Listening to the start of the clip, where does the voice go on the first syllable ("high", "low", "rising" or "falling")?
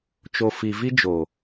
low